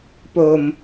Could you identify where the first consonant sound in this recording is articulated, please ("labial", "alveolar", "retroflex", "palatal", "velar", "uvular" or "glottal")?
labial